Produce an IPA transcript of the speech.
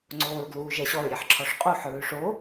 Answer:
ŋ͡ǀ oː ɹ ɡ l uː ʒ ɛ ɕ ɔ ɹ ɾʲ e ħ ǁʰ ɔ ʂ qʼ u ħ ɹ ʉ ʂ o

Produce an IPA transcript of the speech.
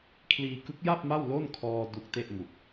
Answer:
kʰ l iː˧ k ɯ˦˥ k̚ j a˥˩ p̚ m a˥˩ w l o˥˩ n kʰ ɔː˧ d u˦˥ k̚ t e˥˩ ʔ m u˨˩ k̚

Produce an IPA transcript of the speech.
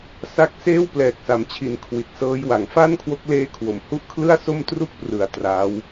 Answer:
s a˦˥ k̚ s eː˥˩ w p l ɛː˨˩ k̚ s a˩˦ m t͡ɕʰ i˨˩ n kʰ w i˨˩ t̚ s ɤː˦˥ j w a˩˦ ŋ f a˥˩ n kʰ w o˦˥ k̚ l eː˦˥ kʰ w o˨˩ m h u˥˩ ʔ kʰ l ɯ˥˩ a̯ s o˥˩ m t r u˥˩ k̚ p r ɯ˨˩ a̯ t r aː˦˥ w

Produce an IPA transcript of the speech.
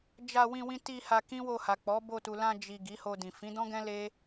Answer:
d͡ʒ a˧ w ĩ˧ w ĩ˧ t i˧ h a˧ k ĩ˦ w o˧ h a˨ k͡p ɔ˨˦ b o˧ t u˨ l ã˧ d͡ʒ i˨ ɡ i˨˦ h o˧ d ĩ˨ f ĩ˨˦ d ɔ̃˦ ɡ ɛ̃˦ l e˦

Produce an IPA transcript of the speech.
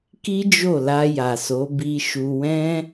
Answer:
k i˦ d͡ʒ o˦˨ l a˧ j a˨ s o˨˦ b i˧ ʃ u˧ w ɛ̃˦

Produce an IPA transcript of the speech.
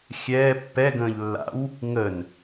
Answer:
xʲ ɛː pː ɛ ɡ ə̃ː ʎ lː a̰ w | ŋ ə n

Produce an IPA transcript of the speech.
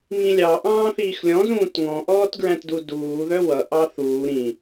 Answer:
ŋ ĩ lʲ ɑ ʔ ɑ̃ː θ iː x lʲ ɔ̃ z ũː t ŋ ɔ̃ ʔ ɔː t ɡ ɹ æ̃ t d u d uː ð œ w ʌ ʔ ɑ θ uː ɾ ĩ

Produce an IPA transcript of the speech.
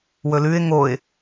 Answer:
w ɵ l ʉ ɪ̯ ŋ o ɪ̯

